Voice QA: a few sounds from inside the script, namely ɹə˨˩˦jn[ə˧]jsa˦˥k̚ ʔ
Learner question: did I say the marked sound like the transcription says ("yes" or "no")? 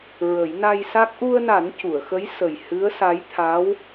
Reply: no